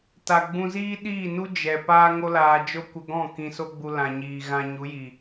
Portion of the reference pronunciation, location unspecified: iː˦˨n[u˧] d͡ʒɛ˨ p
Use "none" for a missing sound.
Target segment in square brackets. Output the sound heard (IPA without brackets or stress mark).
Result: u˦